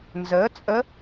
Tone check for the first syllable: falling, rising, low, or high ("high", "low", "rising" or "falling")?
rising